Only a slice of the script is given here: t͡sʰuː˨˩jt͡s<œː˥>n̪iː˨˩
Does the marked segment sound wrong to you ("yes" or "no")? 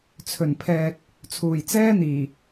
yes